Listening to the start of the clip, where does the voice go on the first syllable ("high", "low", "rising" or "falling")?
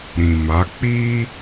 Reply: low